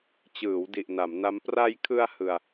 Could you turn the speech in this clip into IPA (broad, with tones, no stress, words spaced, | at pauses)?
t͡ɕɯː˩˦w di˨˩ʔna˩˦mna˦˥m pra˧jkʰɯ˧a̯ hɯ˧a̯